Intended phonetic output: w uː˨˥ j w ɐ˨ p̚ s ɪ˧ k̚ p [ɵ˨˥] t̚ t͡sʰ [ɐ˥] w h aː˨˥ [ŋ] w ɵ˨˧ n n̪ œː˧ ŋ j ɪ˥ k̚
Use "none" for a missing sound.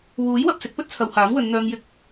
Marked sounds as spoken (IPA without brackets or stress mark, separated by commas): ɵ˥, ɐ˨˧, ŋ